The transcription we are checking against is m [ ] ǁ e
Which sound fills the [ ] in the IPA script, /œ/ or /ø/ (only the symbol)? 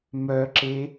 œ